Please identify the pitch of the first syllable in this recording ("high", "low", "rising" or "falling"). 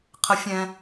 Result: rising